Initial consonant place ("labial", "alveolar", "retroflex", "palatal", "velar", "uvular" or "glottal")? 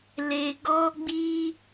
alveolar